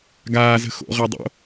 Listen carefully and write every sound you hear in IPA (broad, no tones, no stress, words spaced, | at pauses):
ɡaːzə̤ xo̰ʁɜdˤo̰